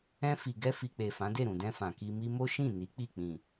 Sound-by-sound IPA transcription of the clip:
ɛ̃˧ f i˨ ɡ ɛ˧ f i˨ k͡p e˨ f ã˨˦ d e˦˨ ɾ ũ˨ d ɛ̃˧ f ã˨ k i˧ m i˦ m o˦ ʃ ĩ˦˨ n i˨˦ k͡p i˦˨ k͡p ĩ˨

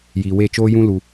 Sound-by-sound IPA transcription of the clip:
j iː˨ w e˦˨ t͡ʃ oː˦ j ũ˦ l u˧

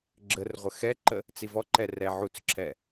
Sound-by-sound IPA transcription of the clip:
ɡ͡ǁ ə r ʁʷ ə x ɛ ǃ ə | t͡s i v ɔ ǃ ɛ r ɛ ʕ u t͡s ǁʰ ɛ

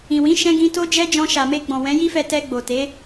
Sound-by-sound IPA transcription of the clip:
ĩ˨ w ĩ˨˦ ʃ ɛ̃˧ ɡ ĩ˧ t o˦ d͡ʒ ɛ˦ d͡ʒ ɔ̃˧ ʃ a˨ m e˧ ɡ͡b ɔ̃˨ w ɛ̃˨˦ j i˦ f ɛ˧ t ɛ˧ ɡ͡b o˨ t e˨˦

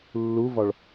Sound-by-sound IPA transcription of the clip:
lː u v ɒ ɭ

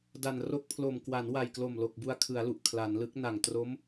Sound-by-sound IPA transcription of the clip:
d a˨˩ n r o˦˥ k̚ pʰ l o˨˩ m k w a˩˦ n w a˨˩ j k l o˨˩ m l o˨˩ k̚ b u˧ a̯ kʰ ɯ˩˦ a̯ l u˨˩ ʔ kʰ l a˩˦ n l ɯ˦˥ k̚ n a˨˩ ŋ t r o˦˥ m

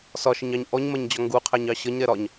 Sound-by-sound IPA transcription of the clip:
s ɒ ʃ ɪ ɲ ɑ ɲ ʔ ɔ ɲ m ɜ ɲ d͡ʑ ɒ ŋ ɡ u qʰ æ ɲ ɑ ɕ ʌ ɲ ɾ ɛ ɾ ɒ ɲ

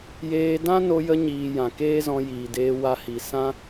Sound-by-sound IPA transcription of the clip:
j eː˧ d ã˦ n o˧ j ə˧ ɲ iː˨ j ã˨ k eː˦ z ɔ̃˧ j iː˨ d eː˧ w a˧ h i˨ s ã˦

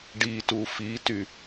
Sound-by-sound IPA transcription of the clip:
ɖ i t u f i t y

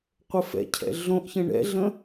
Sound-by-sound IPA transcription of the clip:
qʷ ə f ɛ̰ cʰ ɛ̰ ɮ õ ʔ ç ə̃ ɳ ɛ̰ ɮ ə̃

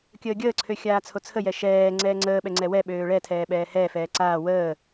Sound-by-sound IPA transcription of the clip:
kʲ əː ɡʲ əː ǀʰ ø xʲ aː t͡sʰ o t͡sʰ ə j ɛ ʃ ɛː ŋ͡ǀ ɛː ŋ͡ǀ əː ɓ ɛ ŋ͡ǀ ɛ w ɛ ɓ øː ɭ ɛ tʰ ɛː ɓ ɛː h ɛː f ɛː ǀ aː w əː

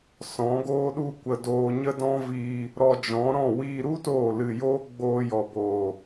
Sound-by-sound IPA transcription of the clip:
s ɔ̃˨˦ ɡ oː˦ ɗ u˦ kʷ ə˧ d oː˧ ɲ ə˦ d ɔ̃˦ v iː˧ | ɾ ɔ˧ d͡ʒ ɔ̃˨˦ ɾ ɔ̃˦˨ w iː˧ ɾ u˦ t oː˦˨ l ɨ˧ j oː˦ ɡ͡b oː˧ j ɔ˨ b oː˨

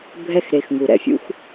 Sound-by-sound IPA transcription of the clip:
bʱ ɛ˦ x ɾ e˨ x ŋ u˩ ɾ ɛ̰˨ fʲ ṵ˥ x

